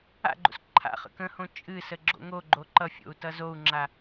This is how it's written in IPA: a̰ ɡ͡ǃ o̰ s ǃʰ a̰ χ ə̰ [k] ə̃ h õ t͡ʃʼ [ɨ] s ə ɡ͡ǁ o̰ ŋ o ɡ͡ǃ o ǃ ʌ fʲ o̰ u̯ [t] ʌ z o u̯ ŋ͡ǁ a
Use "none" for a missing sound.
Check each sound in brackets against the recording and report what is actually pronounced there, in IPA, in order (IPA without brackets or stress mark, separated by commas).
k, ɨ, t